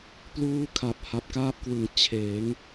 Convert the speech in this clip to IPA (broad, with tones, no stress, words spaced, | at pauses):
pluː˥˩kʰa˨˩p̚ ha˨˩p̚kaː˦˥p̚kwɯ˨˩ŋ t͡ɕʰeː˩˦ŋ